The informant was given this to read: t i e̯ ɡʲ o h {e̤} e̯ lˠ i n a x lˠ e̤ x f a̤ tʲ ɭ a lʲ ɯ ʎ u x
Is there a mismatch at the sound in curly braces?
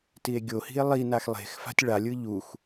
yes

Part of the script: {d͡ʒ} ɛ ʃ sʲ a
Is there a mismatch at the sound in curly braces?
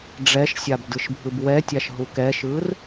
yes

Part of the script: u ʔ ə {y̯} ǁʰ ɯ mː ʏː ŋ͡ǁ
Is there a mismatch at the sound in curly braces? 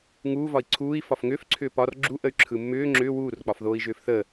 no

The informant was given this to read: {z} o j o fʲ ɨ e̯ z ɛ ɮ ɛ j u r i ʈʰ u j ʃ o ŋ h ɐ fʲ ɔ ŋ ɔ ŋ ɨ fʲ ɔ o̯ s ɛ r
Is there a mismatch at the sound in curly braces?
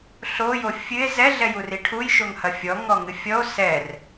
yes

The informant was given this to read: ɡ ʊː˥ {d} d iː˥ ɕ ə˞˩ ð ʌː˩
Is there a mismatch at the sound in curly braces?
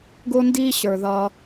yes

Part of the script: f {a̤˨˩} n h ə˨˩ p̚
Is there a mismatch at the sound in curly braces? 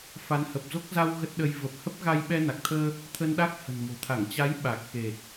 yes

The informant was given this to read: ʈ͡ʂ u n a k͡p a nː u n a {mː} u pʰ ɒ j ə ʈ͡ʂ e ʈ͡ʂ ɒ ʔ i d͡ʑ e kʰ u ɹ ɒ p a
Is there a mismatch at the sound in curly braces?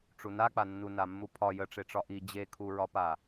no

